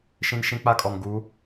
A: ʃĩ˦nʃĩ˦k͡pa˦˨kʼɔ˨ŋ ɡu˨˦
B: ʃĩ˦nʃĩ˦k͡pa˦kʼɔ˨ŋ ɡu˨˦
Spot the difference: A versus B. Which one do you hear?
B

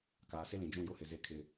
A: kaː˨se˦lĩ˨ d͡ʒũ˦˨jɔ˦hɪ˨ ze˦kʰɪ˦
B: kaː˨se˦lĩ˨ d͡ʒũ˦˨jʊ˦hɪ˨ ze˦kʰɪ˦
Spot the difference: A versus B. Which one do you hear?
B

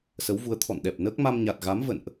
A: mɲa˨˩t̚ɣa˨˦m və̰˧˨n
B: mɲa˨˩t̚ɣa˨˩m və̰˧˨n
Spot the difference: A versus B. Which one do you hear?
A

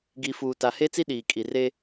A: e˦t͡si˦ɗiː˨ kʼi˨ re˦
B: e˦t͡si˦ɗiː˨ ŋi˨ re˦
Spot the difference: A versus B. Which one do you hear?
A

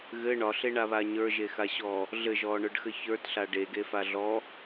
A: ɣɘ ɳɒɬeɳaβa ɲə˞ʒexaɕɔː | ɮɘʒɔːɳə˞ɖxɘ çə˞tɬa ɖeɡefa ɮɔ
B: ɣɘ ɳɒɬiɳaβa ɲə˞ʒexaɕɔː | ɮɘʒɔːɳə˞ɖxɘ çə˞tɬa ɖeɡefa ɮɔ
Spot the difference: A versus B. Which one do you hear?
A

